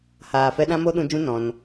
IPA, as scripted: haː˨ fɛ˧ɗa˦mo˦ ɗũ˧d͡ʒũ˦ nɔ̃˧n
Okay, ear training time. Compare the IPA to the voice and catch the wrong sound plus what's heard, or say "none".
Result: a˦ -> ã˦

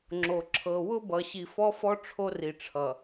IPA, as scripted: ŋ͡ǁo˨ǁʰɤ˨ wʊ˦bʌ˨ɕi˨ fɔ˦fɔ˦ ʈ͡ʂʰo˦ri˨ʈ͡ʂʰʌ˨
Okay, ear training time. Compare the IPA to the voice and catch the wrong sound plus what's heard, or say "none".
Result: none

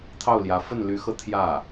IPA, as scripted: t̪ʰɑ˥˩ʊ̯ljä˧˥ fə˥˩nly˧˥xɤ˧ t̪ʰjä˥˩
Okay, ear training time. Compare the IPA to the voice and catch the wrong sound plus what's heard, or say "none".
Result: none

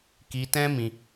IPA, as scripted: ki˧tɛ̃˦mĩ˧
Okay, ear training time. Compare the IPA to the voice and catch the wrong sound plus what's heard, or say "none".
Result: none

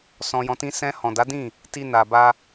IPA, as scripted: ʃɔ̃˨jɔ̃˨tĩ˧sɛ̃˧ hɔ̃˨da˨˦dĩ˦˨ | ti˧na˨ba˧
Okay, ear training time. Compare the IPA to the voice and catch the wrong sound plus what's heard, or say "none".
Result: ʃ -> s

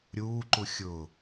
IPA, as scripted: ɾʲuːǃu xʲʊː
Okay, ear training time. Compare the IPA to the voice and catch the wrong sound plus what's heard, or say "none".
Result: none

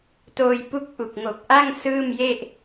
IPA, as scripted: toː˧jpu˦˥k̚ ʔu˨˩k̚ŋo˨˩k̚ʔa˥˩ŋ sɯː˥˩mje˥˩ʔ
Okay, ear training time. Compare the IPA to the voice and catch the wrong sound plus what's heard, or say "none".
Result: none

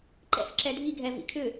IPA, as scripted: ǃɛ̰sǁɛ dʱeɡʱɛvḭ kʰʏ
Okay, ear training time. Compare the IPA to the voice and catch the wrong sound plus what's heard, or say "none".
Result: e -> i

